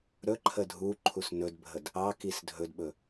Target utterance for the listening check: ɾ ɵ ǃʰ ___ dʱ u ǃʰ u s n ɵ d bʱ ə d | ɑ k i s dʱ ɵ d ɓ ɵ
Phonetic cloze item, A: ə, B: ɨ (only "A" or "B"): A